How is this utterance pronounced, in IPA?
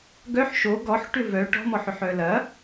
ɡœħ ʃo ɡɔħ ʈʏvœ ʈɔ̤mɔħʏħ œlɐ

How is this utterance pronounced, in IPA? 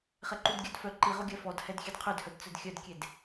χɛǃudɡʲœdfœ ǃi ʁoɡʲœfɔd hɛdxʲɛdqʰødhœd t͡sœdxʲœdkʲed

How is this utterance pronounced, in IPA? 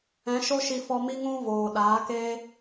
ɛ̃˨˦ʃo˦ ʃi˧ fɔ˧mi˦ ŋũ˦ voː˨ ɗaː˨˦ keː˦

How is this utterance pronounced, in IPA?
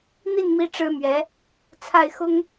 n̪i˥˩n mi˥ʈ͡ʂɻ̩˥mɥɛ˧˥ | t͡sʰa˥˩ɪ̯xʊ˥ŋ

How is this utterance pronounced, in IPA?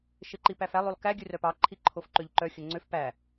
ʃeǃipæfælˠ ʉlˠkæ ɡʲʉrœpɑ ǃʰiǃʰofǃøʎǃœ xʲɵŋ͡ǀøf pæ

